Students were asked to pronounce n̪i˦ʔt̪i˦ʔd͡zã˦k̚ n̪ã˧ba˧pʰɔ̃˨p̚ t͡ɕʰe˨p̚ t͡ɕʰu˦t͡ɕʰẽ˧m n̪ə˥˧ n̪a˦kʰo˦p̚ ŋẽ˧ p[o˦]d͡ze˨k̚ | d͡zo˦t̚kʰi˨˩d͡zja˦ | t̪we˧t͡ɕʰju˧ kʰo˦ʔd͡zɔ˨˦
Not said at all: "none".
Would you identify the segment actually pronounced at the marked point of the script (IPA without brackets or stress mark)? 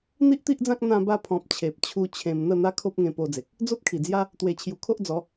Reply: o˧